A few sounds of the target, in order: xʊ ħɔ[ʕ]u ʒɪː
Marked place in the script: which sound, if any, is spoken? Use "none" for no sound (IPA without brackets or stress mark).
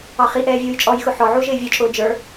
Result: ʕ